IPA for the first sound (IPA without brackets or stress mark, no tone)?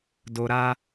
d